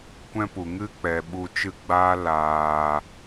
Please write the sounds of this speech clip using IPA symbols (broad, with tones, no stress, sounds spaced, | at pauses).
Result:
kʷ ɛ̃˦ p u˨ ŋ ɨ˦ k͡p ɛ˨ ɓ u˧ t͡ʃ ɨ˦˨ ɡ͡b aː˦ l aː˨